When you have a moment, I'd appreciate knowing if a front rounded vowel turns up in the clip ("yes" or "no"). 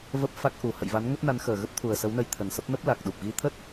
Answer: no